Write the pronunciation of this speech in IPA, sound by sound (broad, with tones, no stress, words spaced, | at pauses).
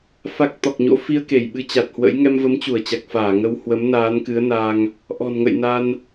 fa˦˥k̚ t̪ɔ˨˩k̚ɲo̰˧˥ fi˧ə̯ke˧˩j ɓɨ˧t͡ɕa˨˩t̚hwə̰˧˥j ŋɛ˧mvə˨˦mt͡ɕu˧˩ə̯t͡ɕa˨˩k̚ faː˧˩ŋə˧w hwə˨˦mnaː˨˦nkɨ˨˦ə̯naː˧ŋ | ʔɔ̤˨˩nŋə̰˧˨jna˧n